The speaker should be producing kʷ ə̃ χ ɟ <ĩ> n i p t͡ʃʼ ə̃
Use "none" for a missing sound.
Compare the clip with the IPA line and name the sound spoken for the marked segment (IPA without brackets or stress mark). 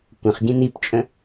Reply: ĩ